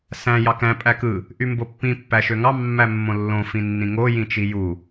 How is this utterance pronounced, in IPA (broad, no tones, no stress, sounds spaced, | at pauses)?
s æ̃ j ɑ k æ̃ pʼ æ k ɯ | ʔ y m b o pː ĩ pː æ ʃ ø ŋ ɑ mː æ mː õ lː õ f ĩ nː ĩ ŋ o j ĩ t͡ʃ i j u